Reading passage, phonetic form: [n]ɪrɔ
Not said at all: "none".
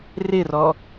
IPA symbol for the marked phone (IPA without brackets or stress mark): r